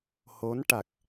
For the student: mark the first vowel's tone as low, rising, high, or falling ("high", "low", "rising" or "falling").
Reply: rising